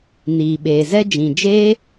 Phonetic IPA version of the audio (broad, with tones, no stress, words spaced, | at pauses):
niː˨ɓeː˨zɛ˦ d͡ʒĩ˨d͡ʒeː˦